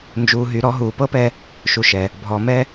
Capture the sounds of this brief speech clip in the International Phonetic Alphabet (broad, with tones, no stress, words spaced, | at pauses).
nd͡ʒuː˨ɦy˨ɾɔ˨˦ ɦuː˨pɤ˦pɛ˦ | ʃu˨ʃɛ˨ | bʱɔ˨mɛ˦